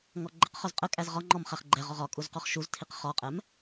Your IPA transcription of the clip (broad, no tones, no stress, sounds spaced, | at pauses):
ŋ ɔ ɡ͡ǃ ə q χ ʊ z qʼ ə kʼ æ z ʁ ɒ ŋ͡ǃ ɔ m χ æ χ ɡ͡ǃ ɛ ʁ ɔ ʁ ɒ kʼ u z q ɔ χ ʃ u z tʰ i q χ ɒ qʼ ɛ m